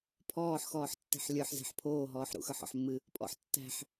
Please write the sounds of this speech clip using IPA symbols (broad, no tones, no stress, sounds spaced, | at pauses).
pʰ ɔː ħ x ɔː ħ tː e̤ ħ lʲ ə˞ ħ z e̤ ħ pʰ oː ɦ ɔː ħ ɾ ṵ x ə˞ ħ ɔ̰ ħ mː ɨ | pʼ ɔ̰ ħ tː æ̤ ħ